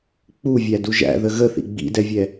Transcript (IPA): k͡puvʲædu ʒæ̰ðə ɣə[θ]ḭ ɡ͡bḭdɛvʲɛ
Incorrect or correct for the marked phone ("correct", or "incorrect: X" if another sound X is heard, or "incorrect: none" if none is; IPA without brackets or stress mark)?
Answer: correct